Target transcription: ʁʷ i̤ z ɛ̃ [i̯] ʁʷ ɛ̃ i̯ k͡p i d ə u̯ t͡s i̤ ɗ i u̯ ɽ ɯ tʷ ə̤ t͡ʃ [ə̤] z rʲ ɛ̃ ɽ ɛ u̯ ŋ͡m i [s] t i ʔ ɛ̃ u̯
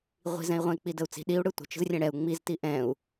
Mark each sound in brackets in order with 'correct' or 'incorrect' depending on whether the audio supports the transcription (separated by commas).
correct, correct, incorrect